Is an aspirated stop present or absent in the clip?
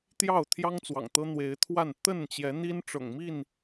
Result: present